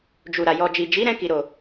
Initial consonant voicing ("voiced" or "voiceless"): voiced